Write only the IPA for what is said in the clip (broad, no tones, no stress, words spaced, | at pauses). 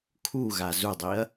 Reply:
kʰuɣa zudˤiɐ̯